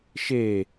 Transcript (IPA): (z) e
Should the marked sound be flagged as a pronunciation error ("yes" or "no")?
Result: yes